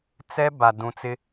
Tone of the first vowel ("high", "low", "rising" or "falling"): high